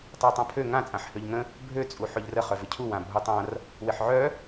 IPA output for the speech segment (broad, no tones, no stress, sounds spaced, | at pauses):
tˤ œ w tˤ ã pʰ ø ŋ ã t͡sʼ ã ħ h ø ʎ ŋ ə̃ | bʱ ø t͡sʼ u ħ ø ʎ r ə χ œ v ɪ cʰ u w ã bʱ u tˤ ã r | w ɪ ħ ʕ œ